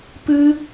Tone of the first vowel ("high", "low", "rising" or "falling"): high